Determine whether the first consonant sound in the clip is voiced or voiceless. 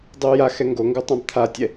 voiced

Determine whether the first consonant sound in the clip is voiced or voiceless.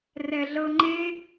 voiced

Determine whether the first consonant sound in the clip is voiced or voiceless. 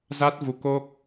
voiced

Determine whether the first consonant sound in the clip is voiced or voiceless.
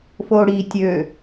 voiceless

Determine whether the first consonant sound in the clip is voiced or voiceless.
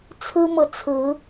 voiceless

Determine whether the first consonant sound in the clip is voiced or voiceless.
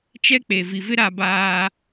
voiceless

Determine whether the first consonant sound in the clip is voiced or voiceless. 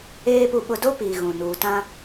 voiceless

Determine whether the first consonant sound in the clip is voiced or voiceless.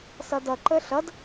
voiceless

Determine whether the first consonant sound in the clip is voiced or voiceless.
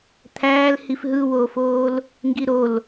voiceless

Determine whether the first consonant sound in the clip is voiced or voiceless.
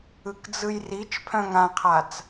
voiceless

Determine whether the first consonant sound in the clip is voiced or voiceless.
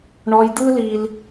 voiced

